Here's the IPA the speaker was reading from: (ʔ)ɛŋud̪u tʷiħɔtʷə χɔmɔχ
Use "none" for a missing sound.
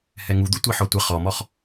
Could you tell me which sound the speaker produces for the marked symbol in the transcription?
h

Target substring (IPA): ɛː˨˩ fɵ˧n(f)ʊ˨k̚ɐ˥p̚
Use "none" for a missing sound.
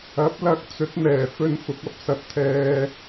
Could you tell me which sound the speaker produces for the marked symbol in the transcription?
f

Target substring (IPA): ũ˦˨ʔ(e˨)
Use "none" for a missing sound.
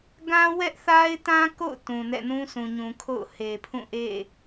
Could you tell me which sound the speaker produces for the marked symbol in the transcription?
ḛ˦˨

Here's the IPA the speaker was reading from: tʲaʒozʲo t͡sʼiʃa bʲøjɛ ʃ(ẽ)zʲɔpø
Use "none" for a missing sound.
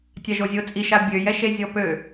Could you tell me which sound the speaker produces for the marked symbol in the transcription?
e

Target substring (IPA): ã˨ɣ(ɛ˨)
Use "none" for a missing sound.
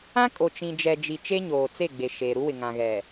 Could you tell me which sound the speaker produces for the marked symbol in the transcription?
ɛ˨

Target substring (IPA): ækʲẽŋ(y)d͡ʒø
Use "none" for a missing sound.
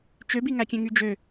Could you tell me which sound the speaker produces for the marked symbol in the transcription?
y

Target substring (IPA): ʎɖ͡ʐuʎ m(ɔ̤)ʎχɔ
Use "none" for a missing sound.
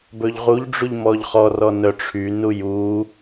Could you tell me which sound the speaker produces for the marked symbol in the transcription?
ɔ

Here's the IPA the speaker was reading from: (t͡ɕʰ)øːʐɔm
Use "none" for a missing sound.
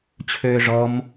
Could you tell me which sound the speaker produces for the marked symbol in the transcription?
t͡ɕʰ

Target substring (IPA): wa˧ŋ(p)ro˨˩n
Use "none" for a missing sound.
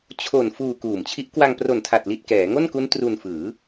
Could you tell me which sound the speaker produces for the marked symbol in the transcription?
p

